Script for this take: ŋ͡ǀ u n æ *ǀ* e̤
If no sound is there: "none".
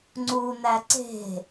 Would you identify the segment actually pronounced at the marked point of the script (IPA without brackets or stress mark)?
ǀ